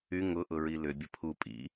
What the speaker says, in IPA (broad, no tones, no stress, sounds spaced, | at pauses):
y ŋ ʊ ʔ ʊ ɹ i l ʏ bʲ ə pʰ u pʼ ḭ